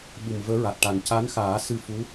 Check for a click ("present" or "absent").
absent